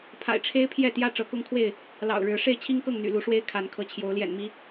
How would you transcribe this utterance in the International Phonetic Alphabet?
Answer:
pʰ a̰˨˩ ɪ̯ ʈ͡ʂʰ e˦ ɪ̯ pʰ j ɛ˥˨ t̪ j ä˦ ʈ͡ʂ ɤ˨˦ k ʊ˦ ŋ kʰ w e˥˨ ɪ̯ | l ɑ̰˨˩ ʊ̯ ɻ ɻ̩˨˦ ʂ e˥˨ ɪ̯ t͡ɕʰ i˦ ŋ k ɤ˥˨ ŋ n̪ y̰˨˩ l u˨˦ ʂ w e˦ ɪ̯ kʰ a˨˦ n kʰ ɤ˨˦ t͡ɕʰ j o˨˦ ʊ̯ l j ɛ̰˨˩ n m i˨˦

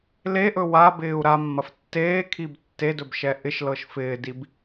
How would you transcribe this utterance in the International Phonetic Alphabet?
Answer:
l e ʔ ɵ w a b ɪː u̯ ɾ a mː ɐ f tː eː kʰ i b tː e d ɵ b ʃ ɛ ʔ ɪ ʃ l ɤ ʃ f ɪː d i b

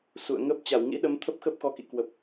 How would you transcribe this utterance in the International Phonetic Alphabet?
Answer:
s ṵ˧˨ ə̯ ŋ ə˦˥ p̚ t͡ɕ a˧˩ w ŋ ḭ˧˥ ɗ ə˨˦ m t̪ʰ ə˦˥ p̚ x ə˦˥ p̚ x ɔ˨˦ k ḭ˧˨ k w ə˨˩ p̚

